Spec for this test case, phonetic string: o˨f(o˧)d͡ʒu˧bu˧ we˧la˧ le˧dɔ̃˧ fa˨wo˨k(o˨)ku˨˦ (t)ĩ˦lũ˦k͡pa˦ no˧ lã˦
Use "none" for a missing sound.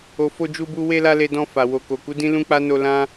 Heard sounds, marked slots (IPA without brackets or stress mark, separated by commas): o˧, o˨, d